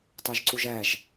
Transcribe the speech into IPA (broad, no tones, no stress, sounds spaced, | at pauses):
t ɑ ʒ ǀ u ʒ æ ʒ